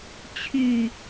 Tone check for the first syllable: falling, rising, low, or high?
falling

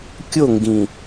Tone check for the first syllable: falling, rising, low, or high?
falling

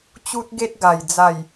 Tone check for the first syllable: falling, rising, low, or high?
high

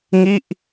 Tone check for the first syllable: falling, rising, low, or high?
falling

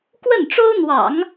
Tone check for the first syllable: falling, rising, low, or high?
falling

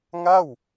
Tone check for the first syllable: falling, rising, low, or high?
falling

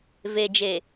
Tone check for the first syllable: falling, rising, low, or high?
low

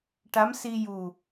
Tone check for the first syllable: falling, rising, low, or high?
rising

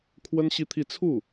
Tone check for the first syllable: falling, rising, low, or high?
high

